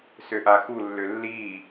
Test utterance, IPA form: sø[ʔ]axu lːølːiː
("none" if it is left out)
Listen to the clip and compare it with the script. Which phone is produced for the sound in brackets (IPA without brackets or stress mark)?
ʔ